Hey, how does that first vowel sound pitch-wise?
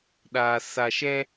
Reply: low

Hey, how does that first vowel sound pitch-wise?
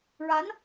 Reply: rising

